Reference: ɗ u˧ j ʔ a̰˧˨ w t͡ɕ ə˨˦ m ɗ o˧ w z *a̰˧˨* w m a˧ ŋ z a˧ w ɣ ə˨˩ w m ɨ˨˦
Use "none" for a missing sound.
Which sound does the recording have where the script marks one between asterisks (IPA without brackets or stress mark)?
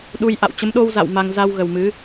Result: a̰˧˨